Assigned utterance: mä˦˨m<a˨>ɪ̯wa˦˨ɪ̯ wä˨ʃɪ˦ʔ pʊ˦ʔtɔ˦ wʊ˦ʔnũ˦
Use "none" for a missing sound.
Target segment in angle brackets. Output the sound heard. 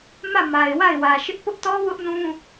a˨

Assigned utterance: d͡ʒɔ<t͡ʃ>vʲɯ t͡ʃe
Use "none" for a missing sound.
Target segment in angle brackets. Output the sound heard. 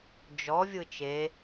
none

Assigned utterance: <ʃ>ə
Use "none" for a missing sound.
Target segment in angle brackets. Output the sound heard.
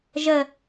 ʒ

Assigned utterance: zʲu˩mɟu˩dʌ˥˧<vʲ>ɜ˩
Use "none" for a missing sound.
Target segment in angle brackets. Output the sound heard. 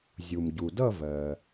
v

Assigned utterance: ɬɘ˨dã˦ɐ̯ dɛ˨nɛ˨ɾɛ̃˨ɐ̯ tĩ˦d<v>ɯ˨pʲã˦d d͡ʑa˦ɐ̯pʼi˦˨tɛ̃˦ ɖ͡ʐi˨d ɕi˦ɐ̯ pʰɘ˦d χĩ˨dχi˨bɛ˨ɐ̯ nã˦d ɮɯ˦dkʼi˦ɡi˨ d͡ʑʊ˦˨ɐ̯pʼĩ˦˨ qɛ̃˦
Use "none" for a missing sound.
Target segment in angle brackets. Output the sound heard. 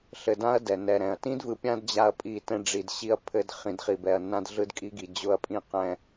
v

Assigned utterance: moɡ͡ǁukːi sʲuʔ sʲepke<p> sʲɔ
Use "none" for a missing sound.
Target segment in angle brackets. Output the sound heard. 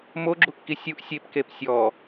p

